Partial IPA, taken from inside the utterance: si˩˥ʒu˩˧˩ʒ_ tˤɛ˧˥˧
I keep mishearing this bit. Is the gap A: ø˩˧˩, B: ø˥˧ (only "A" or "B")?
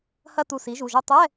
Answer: B